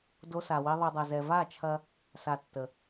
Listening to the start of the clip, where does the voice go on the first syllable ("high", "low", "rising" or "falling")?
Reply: high